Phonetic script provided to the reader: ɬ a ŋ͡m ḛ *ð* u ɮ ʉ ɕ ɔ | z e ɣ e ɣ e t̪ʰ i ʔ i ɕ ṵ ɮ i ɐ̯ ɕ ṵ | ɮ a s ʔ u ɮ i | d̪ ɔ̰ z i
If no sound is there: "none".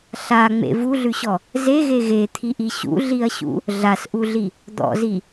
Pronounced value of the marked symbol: v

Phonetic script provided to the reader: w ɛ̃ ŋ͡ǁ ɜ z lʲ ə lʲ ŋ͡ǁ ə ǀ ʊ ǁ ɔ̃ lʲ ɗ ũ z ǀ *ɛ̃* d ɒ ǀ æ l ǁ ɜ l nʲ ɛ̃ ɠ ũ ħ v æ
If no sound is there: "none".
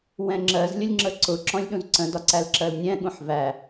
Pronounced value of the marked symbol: ə̃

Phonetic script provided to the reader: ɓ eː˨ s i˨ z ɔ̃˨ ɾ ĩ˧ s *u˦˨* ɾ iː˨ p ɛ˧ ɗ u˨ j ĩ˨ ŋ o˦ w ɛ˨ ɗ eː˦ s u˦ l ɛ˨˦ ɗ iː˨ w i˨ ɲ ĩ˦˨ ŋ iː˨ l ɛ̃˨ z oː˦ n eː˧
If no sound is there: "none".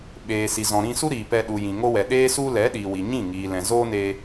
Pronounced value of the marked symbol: u˦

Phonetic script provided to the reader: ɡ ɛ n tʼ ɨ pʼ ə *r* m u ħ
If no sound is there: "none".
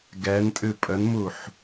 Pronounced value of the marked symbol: n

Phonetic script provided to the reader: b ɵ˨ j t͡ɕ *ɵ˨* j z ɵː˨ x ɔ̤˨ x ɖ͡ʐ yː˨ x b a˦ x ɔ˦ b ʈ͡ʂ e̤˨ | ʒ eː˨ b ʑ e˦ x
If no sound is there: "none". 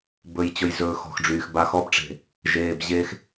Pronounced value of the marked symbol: ɵ˨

